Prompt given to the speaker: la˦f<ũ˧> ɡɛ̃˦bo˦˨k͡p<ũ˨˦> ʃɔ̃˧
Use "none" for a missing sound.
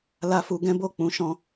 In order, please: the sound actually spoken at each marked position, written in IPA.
u˧, ũ˨˦

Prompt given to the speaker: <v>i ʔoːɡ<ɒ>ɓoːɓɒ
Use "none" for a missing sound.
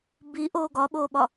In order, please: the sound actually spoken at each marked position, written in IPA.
b, ɒ

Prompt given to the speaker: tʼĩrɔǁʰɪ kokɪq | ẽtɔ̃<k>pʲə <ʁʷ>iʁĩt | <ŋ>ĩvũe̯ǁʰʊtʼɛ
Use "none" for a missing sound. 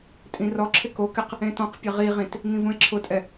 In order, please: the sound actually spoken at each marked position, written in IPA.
q, ʁ, ŋ

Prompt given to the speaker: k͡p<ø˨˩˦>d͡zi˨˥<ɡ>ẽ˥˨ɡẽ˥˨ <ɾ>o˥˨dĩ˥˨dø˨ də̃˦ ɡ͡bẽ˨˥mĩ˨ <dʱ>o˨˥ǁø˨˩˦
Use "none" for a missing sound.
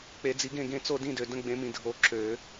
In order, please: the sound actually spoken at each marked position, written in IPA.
e˨˩˦, ɡ, t͡s, dʱ

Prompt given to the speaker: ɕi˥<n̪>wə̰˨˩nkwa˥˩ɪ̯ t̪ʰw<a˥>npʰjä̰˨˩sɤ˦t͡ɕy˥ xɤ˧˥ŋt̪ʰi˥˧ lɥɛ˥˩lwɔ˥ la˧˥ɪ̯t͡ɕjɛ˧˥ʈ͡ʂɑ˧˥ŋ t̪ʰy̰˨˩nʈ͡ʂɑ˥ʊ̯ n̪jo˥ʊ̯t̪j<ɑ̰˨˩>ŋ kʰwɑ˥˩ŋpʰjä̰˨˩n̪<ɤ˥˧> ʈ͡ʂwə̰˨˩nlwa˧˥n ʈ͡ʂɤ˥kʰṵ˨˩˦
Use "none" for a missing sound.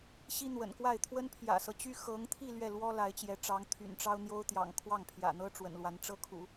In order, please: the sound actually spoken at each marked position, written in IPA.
n̪, ə˥, ɑ̰˨˩, ɤ˥

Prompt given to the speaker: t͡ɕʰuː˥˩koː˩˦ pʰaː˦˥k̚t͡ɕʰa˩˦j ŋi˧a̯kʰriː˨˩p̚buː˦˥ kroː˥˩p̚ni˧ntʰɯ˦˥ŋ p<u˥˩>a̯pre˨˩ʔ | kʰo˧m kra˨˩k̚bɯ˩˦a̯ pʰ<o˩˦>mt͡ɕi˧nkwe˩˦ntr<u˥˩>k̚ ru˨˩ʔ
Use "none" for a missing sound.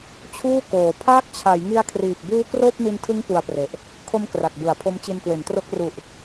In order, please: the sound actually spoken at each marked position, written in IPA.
u˧, o˦˥, o˥˩

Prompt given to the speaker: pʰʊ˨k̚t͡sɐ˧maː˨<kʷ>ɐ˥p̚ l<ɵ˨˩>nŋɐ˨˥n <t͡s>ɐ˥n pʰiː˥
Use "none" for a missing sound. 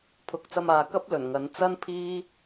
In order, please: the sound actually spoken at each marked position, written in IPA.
k, ɵ˨˩, t͡s

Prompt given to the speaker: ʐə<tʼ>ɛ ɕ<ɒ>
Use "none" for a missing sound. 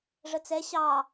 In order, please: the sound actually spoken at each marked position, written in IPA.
t͡s, ɑ

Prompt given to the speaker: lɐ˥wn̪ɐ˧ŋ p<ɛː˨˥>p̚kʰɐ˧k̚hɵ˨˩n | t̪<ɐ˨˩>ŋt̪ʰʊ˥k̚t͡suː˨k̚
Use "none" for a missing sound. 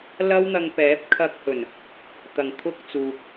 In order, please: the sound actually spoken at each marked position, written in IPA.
ɛː˨˥, ɐ˨˩

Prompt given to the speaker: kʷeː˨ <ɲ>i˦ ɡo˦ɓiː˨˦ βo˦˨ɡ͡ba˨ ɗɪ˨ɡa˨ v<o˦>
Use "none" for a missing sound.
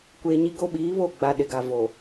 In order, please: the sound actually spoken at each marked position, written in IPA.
ɲ, o˨

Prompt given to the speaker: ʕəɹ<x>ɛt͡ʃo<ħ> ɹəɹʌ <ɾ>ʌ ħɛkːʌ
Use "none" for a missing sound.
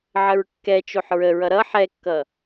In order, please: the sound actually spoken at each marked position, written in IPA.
kː, ħ, ɾ

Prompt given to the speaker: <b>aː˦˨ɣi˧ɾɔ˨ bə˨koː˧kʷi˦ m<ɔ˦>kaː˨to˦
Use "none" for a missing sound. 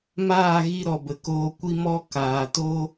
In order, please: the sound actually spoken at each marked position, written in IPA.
m, ɔ˦

